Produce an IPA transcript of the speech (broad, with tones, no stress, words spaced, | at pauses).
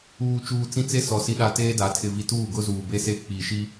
uː˨t͡ʃuː˨ t͡sĩ˦t͡se˦ sɔ˨ si˨ɗa˨ teː˦da˨˦ tʰɪ˨vi˨tuː˦˨ ɡʊ˦zuː˨be˦se˦ k͡pi˨ʃi˦